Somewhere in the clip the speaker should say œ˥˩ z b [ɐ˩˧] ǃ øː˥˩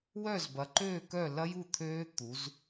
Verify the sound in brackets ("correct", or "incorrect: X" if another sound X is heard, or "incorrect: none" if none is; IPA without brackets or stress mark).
correct